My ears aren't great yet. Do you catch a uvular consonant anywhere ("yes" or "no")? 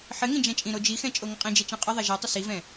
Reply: yes